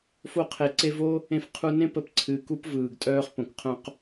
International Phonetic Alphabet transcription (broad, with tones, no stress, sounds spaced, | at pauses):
f o˧ qʰ e˨ ǀ e˧ v o˦ | ẽ˦ f qʰ u˦ n ẽ˦ p ə˧ p ǀʰ ɨ˨ k u˦ p v ɯː˨ ɡ tʼ œː˦ χ p õ˨ k qʰ œ̃˦ q